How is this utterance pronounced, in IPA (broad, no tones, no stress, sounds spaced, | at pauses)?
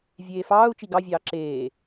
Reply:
vʲ eː f ɑː u̯ t͡ʃ i ɡ ɑ vʲ ɑː ǁ eː